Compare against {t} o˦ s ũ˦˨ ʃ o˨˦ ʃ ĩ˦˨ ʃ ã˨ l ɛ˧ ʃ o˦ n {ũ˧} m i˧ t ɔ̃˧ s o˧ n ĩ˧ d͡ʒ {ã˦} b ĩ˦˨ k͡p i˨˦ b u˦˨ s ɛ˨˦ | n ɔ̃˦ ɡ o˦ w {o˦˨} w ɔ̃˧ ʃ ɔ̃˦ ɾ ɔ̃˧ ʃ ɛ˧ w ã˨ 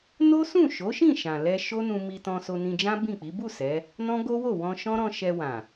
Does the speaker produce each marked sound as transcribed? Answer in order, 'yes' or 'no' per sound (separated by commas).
no, yes, yes, yes